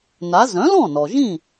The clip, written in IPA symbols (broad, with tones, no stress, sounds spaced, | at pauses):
n a˩˥ z œ̃˩˥ l ɔ̃˥˩ n ɔ˩ ʒ ĩ˥˩